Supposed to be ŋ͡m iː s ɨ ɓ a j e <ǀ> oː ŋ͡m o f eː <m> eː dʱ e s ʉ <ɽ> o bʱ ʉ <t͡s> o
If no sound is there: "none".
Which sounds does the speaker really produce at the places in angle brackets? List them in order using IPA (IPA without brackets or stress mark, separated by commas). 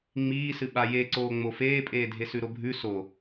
ǀ, pʼ, ɾ, s